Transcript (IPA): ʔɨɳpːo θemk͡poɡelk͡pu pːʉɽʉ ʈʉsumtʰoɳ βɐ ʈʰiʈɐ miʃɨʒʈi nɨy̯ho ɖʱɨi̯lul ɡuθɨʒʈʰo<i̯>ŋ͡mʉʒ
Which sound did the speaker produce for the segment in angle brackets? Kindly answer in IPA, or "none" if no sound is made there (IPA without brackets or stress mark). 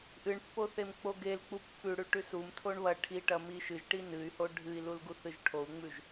u̯